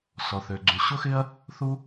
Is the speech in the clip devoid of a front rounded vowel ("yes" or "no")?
no